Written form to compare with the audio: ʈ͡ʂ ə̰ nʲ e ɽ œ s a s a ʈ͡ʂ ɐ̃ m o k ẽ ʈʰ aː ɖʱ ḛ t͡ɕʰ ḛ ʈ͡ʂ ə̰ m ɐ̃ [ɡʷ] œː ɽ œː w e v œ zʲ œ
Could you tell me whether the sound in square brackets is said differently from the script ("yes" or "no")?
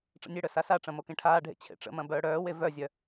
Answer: yes